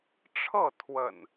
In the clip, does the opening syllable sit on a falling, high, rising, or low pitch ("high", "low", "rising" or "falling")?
falling